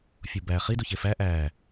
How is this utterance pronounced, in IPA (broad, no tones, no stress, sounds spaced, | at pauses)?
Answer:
fʲ u b æ χ i d u ç e f æ ʔ æ